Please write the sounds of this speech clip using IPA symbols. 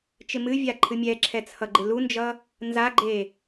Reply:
t͡ʃ ɪ m ɨ vʲ a ǃʰ ɨ mʲ ɛ ǁʰ ɛ t͡sʰ ʌ ɡ͡ǃ ɪ l u n d͡ʒ ʌ | n z a ɡ͡ǃ e

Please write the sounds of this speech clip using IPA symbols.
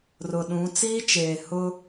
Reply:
r ʊ˨ ɗ ũ˨˦ t͡s iː˦ t͡ʃ eː˨ h ʊ˦

